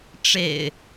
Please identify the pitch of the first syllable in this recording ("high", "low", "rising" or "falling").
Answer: low